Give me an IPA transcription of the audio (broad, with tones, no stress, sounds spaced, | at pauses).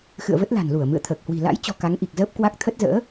x ɨ̰˧˨ ə̯ v ə˦˥ t̚ l a̤˨˩ n l u˧˩ ə̯ m ɨ̰˧˨ ə̯ t̪ʰ əː˨˩ k̚ h w i̤˨˩ l a̰˧˥ j t͡ɕ ɔ̤˨˩ k a˨˦ ŋ ʔ i˨˩ k̚ z əː˦˥ p̚ k w a˦˥ k̚ t̪ʰ ə˦˥ t̚ z ə̰ː˧˥